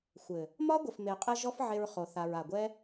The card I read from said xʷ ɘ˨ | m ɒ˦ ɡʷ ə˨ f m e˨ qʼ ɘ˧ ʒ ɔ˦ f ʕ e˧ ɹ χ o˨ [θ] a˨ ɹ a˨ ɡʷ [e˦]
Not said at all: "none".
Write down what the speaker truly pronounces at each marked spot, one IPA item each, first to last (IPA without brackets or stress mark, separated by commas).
θ, ɛ˦